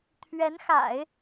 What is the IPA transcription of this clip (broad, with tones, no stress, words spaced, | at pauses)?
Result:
t̪ʰɥɛ˧˥nxa̰˨˩˦ɪ̯